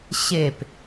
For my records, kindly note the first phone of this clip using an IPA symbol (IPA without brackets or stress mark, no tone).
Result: ɕ